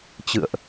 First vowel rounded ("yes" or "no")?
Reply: no